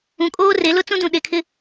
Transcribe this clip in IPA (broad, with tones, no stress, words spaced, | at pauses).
ũ˨kʼoː˦re˨˦lʊ˦ t͡sũ˦dũ˨ɗe˨kʰɪ˦